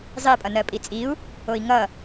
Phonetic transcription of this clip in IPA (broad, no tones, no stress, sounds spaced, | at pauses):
zˤ i pʼ ʌ n ɜ pʼ i t͡sʼ i u̯ | o i̯ ŋ ʌ